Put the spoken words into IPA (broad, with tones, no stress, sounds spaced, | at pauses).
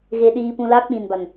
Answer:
ɣ e˧ ɗ iː˧ p ũ˧ l a˦ k͡p ĩ˨ n b a˨ n